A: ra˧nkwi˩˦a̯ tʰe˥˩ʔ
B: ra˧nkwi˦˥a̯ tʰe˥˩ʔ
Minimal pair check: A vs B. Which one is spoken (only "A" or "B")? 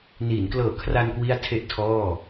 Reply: B